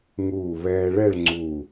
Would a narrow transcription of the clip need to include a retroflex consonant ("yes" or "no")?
yes